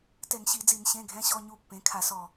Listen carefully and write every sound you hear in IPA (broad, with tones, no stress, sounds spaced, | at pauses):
t ɛ˧˩˧ ŋ ɕ i˧˩˧ d͡z i˧˩˧ n ɕ ẽ˧˥˧ ɡʱ ɛ̃˧˥˧ ɕ ɔ˧˥˧ ɲ u˦˨ pː ẽ˩˥ kʰ a˧˩˧ s ɔ˨˩